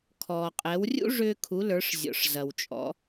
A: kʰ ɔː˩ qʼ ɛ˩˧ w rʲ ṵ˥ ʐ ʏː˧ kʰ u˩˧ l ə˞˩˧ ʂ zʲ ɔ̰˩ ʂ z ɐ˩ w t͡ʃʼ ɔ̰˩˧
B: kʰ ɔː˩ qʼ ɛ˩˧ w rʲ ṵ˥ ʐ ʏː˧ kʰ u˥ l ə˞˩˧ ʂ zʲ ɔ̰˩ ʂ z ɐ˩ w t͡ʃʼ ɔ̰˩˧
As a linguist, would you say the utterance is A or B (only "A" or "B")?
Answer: A